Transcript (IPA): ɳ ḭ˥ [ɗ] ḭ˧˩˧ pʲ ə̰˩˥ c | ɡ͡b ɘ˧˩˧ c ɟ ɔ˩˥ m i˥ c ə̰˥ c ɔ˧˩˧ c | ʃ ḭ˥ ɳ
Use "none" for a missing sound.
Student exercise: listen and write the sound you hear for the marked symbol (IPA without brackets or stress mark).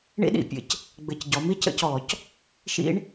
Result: ɗ